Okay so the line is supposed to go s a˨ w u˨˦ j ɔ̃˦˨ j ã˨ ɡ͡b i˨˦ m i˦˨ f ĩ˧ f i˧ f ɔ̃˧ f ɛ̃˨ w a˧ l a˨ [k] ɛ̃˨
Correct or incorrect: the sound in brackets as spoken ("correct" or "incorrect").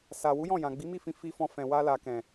correct